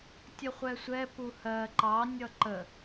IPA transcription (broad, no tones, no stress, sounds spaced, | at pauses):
tʲ ə χʷ ɛ sʷ ɛ p u h ɜ ǃ ɑ nʲ ʌ ǃ ə